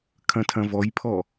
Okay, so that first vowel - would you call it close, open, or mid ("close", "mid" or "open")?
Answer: open